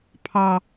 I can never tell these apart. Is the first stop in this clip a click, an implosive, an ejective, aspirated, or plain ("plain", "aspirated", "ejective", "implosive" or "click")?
aspirated